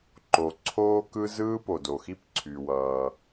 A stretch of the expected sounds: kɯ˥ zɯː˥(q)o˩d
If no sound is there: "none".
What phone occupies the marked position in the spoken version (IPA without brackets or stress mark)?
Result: p